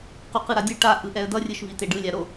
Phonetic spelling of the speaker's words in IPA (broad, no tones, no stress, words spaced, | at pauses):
quqɯɾadʲɯ ʈa ʔɯʔɛə̯dʌ rʲɯʃviteɖɯ lʲaɾo